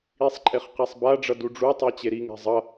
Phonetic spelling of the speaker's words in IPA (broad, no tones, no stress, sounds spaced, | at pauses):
i sˤ ǃʼ e χ q e sˤ b a ɖ͡ʐ ʌ d u ɖ͡ʐ u tˤ e t͡ɕ e ɾ i ŋ ɛ̤ zˤ ʌ